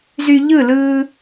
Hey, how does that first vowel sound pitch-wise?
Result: low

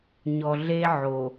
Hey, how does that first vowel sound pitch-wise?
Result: low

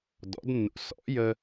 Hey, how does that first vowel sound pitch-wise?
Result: rising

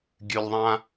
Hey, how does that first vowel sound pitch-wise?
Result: low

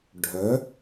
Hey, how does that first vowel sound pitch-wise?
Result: rising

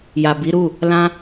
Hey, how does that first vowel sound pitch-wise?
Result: low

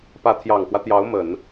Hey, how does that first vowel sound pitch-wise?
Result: rising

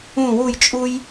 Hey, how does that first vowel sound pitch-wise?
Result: falling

